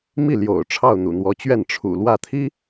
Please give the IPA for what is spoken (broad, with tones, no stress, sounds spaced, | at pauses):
m i˥˩ l j o̰˨˩ ʊ̯ ʈ͡ʂʰ ɑ˥˩ ʊ̯ n̪ ṵ˨˩ n̪ w ɔ˧˥ t͡ɕ ɥ ɛ˥˩ n ʈ͡ʂʰ ṵ˨˩ l w ä˥˩ t̪ʰ i˥